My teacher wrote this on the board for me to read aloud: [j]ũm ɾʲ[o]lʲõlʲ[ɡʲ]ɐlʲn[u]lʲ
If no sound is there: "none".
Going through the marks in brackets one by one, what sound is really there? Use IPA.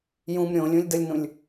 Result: j, õ, d, ũ

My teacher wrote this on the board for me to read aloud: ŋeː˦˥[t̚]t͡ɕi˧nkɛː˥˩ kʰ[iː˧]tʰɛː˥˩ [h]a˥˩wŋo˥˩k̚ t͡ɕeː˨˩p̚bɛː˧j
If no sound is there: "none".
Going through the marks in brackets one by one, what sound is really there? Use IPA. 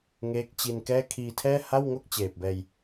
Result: k̚, iː˧, h

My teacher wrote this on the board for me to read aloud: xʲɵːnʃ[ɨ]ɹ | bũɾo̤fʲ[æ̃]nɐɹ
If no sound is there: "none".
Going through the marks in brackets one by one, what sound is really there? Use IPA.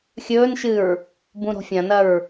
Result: ɨ, ɐ̃

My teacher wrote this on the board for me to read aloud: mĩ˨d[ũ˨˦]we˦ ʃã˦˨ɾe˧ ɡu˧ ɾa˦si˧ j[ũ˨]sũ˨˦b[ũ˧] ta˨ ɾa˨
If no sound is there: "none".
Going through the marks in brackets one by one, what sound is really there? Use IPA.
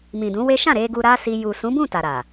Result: ũ˨˦, u˨, ũ˦˨

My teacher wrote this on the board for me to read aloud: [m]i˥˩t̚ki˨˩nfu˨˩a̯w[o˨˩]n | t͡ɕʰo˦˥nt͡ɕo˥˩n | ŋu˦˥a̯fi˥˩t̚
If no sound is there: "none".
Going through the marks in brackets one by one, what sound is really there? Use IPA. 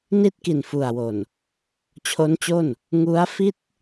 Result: n, o˨˩

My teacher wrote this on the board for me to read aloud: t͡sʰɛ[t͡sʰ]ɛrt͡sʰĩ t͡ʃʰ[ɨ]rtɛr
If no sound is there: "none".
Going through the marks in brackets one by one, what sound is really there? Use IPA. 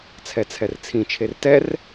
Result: t͡sʰ, e

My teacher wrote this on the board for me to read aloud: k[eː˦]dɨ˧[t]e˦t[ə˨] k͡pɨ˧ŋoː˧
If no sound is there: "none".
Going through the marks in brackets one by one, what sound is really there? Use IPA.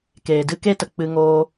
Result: eː˨, k, ə˨

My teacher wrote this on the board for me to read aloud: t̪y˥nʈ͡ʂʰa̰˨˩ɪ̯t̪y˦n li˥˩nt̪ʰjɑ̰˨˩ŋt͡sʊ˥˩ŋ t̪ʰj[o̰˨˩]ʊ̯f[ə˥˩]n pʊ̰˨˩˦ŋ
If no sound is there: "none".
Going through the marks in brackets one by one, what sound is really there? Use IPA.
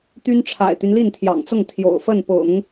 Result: o̰˨˩, ə˥˩

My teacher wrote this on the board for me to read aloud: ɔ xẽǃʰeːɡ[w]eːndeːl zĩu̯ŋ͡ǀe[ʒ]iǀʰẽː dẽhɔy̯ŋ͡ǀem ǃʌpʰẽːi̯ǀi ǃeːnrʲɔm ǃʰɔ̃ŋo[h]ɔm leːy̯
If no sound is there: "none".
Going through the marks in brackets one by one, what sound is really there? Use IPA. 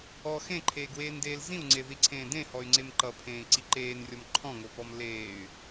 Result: w, ð, p

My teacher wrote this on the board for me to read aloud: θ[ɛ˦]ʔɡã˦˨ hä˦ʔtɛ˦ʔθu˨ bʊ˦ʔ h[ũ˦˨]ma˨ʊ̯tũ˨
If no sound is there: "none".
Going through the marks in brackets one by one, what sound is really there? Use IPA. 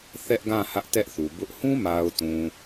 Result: ɛ˦, ũ˦

